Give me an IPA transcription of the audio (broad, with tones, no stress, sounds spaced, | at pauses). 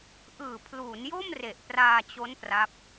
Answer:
ʔ ɯː˨˩ pʰ l uː˩˦ n j o˥˩ m r e˨˩ ʔ p r aː˧ t͡ɕ o˦˥ n p r a˦˥ p̚